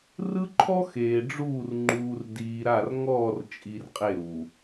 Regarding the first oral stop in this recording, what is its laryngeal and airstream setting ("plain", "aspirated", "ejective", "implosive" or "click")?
click